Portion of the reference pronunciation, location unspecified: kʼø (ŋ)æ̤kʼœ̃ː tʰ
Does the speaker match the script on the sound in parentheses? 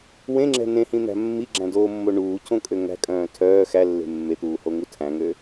yes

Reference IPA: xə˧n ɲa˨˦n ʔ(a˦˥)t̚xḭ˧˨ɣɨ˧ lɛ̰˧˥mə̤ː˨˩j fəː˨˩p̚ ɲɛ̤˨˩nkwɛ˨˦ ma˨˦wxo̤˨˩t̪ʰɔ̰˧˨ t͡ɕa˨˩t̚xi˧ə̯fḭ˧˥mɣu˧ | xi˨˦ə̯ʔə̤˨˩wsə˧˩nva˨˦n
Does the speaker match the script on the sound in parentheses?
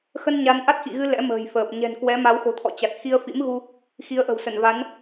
yes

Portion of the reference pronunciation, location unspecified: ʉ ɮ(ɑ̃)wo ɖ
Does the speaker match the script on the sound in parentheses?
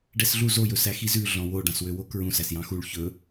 no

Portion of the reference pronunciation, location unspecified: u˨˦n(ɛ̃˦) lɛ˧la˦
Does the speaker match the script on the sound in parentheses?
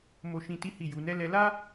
no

